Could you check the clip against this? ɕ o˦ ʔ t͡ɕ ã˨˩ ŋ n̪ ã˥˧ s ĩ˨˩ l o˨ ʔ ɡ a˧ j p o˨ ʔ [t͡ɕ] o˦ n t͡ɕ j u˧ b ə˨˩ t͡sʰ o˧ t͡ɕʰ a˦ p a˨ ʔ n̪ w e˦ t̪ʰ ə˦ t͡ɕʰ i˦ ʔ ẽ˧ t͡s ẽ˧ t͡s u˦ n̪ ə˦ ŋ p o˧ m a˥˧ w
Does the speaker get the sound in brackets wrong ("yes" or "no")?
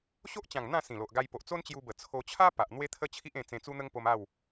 yes